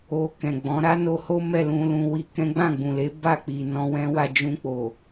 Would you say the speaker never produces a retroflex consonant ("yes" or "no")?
yes